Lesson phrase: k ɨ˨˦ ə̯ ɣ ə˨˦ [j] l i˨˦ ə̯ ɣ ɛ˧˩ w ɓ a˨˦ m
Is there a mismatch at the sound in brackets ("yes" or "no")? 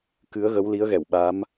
yes